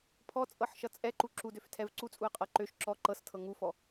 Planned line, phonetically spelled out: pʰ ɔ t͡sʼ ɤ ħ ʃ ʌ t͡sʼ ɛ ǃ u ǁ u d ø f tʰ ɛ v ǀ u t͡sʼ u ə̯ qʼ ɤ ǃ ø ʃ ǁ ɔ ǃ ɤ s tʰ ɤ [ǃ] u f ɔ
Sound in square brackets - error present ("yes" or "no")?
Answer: yes